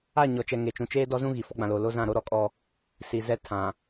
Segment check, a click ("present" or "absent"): absent